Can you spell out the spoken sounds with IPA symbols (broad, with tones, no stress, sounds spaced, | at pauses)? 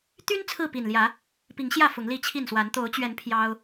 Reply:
t̪ y˦ n t͡sʰ ɹ̩˥˨ p i˨˩ n l j ä˨˦ | p i˨˦ ŋ ɕ j ä˥˨ f ʊ˨˦ ŋ l i˥˨ t͡ɕʰ i˥˨ n s w a˨˦ n t̪ o˨˦ ʊ̯ t͡ɕ ɥ ɛ˨˦ n pʰ j ɑ˦ ʊ̯